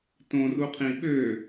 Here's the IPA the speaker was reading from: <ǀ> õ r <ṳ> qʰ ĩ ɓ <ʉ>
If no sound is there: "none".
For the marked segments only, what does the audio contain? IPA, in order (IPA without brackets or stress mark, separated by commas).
t, u, ø